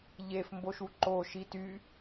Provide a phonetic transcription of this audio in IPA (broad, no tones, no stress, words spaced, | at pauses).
ʎef mboʃuǃo ʃity